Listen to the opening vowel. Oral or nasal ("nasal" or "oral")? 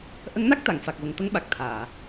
oral